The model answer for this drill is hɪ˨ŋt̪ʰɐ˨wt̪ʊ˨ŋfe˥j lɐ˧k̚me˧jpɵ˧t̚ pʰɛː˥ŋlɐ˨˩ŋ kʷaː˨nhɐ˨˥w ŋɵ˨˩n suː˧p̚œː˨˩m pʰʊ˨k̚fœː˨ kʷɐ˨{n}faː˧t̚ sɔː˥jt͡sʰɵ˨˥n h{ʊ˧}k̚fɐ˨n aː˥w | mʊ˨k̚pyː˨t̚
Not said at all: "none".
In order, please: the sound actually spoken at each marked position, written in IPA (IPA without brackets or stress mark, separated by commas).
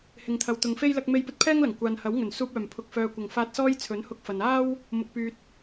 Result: ŋ, ʊ˧